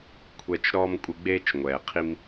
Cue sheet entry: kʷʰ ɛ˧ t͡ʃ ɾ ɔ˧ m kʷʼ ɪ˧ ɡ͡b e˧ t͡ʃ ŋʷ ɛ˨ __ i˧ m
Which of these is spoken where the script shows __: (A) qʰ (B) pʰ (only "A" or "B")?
A